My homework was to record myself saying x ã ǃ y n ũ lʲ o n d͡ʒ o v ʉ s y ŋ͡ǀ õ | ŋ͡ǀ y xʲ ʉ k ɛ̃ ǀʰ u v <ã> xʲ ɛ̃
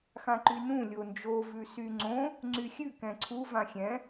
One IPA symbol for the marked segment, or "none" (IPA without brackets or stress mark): ã